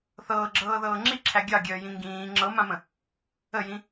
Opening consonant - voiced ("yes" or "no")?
no